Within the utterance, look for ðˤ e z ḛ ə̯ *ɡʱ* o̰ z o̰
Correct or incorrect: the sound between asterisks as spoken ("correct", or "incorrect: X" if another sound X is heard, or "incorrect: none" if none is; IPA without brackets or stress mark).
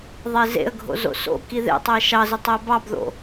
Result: correct